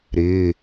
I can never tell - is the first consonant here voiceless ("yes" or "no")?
no